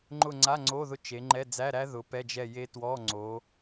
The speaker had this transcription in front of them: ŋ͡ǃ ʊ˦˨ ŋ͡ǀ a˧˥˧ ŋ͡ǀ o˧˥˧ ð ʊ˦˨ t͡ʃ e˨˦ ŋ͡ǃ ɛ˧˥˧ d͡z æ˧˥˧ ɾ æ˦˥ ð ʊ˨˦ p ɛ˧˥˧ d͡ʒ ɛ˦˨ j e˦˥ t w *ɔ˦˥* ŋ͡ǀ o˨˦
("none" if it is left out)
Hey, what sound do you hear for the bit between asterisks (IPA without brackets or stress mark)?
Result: ɔ˧˥˧